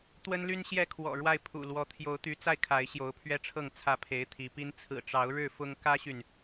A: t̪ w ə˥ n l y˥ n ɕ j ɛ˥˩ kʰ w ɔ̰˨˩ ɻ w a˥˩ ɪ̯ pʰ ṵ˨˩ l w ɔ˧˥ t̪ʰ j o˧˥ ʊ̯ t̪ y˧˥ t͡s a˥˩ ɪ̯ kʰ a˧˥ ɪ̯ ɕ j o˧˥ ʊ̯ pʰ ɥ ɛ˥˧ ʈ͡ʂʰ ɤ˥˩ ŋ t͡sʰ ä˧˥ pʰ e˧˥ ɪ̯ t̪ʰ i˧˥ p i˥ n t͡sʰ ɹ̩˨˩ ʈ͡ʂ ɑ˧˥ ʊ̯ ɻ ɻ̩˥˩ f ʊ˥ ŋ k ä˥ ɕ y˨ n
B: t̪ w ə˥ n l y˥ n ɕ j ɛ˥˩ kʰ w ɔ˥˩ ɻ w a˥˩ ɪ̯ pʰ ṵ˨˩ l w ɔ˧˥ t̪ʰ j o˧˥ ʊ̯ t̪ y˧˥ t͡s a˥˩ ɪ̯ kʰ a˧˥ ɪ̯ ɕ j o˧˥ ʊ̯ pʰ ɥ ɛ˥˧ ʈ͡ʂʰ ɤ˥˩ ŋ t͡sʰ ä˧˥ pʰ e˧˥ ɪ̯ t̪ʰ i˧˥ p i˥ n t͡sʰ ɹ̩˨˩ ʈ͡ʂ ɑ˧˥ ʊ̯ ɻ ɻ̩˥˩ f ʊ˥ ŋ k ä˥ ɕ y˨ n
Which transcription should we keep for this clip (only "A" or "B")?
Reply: A